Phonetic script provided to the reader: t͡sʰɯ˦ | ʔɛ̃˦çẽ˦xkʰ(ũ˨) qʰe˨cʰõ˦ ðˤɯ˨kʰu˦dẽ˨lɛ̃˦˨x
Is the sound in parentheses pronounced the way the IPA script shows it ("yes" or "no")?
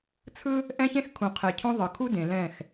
yes